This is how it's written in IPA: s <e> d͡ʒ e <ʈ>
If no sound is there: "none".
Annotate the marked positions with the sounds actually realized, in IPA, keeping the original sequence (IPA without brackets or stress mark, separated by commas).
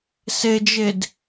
e, d